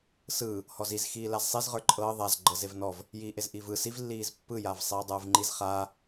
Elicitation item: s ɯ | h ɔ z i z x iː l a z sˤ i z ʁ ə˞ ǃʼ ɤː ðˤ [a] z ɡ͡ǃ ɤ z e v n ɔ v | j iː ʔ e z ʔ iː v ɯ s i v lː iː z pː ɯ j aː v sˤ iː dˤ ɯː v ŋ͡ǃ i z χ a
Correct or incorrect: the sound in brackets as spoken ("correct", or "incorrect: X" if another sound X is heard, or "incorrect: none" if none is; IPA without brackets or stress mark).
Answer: correct